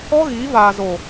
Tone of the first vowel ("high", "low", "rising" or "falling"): high